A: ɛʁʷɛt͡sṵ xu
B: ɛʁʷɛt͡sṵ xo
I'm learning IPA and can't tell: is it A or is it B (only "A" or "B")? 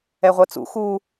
A